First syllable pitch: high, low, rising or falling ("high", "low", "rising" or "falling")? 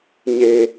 low